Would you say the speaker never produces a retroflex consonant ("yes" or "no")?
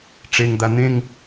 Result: no